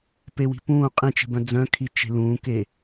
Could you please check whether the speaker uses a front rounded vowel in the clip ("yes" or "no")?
yes